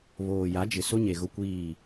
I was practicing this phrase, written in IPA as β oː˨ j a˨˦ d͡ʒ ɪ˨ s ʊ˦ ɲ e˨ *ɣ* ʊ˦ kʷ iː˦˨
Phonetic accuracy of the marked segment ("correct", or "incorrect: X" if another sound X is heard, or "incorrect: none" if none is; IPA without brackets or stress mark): correct